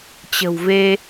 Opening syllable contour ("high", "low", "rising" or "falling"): low